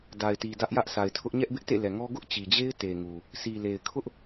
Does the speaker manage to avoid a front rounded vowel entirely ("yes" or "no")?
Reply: yes